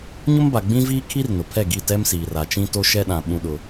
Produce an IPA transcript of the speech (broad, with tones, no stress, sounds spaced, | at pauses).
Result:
ɲ ʊ˦ m b a˨ ɡ͡b ĩ˦ v iː˦ kʰ i˦ r n ʊ˨ pʰ ɛ˦˨ ɡ i˦˨ t ɛ˦ m s iː˨ r a˨ t͡ʃ ĩ˦ t o˦ ʃ ɛ˦ ɗ ã˨ ɓ ũ˦ ɗ ʊ˦